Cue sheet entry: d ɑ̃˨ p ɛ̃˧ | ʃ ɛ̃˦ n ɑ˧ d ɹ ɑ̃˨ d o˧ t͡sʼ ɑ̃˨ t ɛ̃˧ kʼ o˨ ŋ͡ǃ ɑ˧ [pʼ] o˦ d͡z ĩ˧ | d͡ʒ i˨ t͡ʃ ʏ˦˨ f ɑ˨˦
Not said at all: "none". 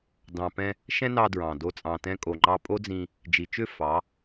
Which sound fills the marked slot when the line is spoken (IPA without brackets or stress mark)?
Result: pʼ